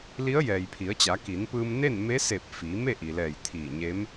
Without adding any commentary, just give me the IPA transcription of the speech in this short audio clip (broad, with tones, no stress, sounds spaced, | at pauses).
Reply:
l i˧˥ ə̯ j ɛː˩ j pʰ i˩˧ ə̯ t͡ɕ a˩˧ k i˩˧ n p ɯː˧ m n e˥˨ n m e˧˥ s e˧˩ p̚ f iː˩˧ m e˥˨ ʔ i˩ l ɛː˧˩ j t̪ʰ iː˧˩ ɲ e˧˥ m